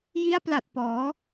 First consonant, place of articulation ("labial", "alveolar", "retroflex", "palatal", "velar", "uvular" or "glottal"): palatal